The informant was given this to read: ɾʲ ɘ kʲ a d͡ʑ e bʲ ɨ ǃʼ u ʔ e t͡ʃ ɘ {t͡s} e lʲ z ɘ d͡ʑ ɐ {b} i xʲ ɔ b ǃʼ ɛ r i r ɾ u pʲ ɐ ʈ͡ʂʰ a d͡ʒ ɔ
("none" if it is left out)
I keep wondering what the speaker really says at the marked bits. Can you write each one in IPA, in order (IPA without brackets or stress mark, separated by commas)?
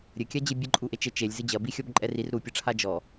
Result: t͡ʃ, b